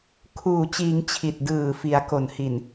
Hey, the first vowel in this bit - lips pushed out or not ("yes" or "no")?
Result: yes